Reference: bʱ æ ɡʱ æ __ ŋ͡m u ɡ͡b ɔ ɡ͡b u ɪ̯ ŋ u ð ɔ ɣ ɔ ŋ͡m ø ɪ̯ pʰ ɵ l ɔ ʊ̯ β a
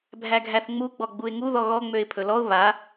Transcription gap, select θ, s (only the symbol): θ